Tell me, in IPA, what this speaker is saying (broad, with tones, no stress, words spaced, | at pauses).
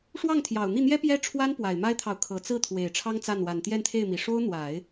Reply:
ʂwɑ˥˩ŋt̪ʰjɑ˨˩ʊ̯n̪i˥˩n̪jɛ˥ pjɛ˥ʈ͡ʂʰwa˥n pwa˨˩ɪ̯ma˥ɪ̯t̪ʰɑ˨ʊ̯ kʰɤ˨˩t͡sɹ̩˥˩ t̪ʰwe˨˩ɪ̯ʈ͡ʂʰɑ˥ŋt͡sa˥˩n wa˨˩nt̪jɛ˥˧nt̪ʰe˥˩ɪ̯mi˨˩ ʂo˥ʊ̯n̪wa˨˩˦ɪ̯